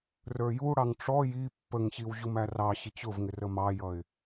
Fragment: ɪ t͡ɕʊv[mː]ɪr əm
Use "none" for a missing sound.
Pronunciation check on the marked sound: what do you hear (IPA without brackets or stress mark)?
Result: ŋ